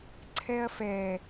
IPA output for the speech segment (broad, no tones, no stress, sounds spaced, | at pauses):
ǀʰ ɛ ɐ̯ f ɛ